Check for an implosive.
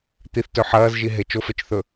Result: absent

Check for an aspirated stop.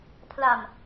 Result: present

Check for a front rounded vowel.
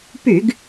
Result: present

